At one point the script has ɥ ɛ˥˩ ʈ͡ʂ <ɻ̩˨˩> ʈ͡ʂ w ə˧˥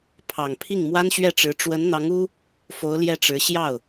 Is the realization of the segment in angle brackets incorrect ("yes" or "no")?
yes